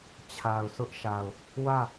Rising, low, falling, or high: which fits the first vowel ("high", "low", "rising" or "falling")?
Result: low